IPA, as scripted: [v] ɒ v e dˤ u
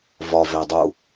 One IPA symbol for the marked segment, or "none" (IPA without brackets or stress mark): v